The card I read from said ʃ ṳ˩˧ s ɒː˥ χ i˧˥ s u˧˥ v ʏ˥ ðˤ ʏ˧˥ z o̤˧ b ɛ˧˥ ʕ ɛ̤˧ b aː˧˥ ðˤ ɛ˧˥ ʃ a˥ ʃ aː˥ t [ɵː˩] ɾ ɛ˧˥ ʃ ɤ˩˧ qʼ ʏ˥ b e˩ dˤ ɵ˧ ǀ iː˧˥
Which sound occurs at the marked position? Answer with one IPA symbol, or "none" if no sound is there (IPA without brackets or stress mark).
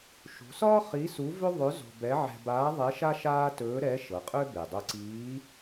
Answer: ɵː˧˥